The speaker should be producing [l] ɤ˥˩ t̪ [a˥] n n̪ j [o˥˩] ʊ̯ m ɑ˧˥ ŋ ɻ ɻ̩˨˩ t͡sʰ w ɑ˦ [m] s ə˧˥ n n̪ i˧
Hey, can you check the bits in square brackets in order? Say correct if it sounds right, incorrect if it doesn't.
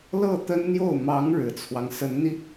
correct, incorrect: ə˥, correct, incorrect: ŋ

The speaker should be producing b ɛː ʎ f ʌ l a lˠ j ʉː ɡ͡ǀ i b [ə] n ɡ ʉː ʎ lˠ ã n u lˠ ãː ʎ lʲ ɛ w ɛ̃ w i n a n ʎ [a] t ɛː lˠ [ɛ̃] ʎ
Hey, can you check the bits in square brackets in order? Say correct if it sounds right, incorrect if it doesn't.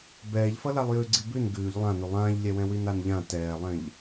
incorrect: ʉ, incorrect: ã, correct

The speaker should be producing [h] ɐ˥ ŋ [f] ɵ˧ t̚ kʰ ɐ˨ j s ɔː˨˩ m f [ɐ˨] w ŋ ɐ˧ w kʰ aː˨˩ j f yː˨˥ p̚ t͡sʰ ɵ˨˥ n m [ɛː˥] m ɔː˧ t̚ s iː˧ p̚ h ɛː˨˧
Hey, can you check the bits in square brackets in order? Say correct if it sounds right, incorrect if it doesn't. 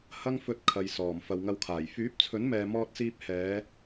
correct, correct, correct, incorrect: ɛː˨

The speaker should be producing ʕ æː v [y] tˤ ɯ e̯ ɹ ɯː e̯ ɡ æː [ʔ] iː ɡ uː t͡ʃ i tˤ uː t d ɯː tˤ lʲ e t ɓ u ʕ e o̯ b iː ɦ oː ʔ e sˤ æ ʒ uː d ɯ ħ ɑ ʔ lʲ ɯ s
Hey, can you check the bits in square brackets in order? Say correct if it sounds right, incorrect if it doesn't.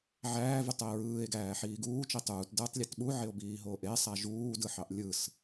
correct, incorrect: ħ

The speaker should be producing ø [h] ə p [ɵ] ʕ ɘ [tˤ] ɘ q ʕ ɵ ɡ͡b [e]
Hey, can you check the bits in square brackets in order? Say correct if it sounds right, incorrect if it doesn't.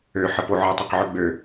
incorrect: ħ, incorrect: o, correct, incorrect: ø

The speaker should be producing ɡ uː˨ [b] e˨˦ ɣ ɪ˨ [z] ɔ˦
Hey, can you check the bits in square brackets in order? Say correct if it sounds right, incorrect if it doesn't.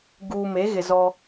incorrect: m, correct

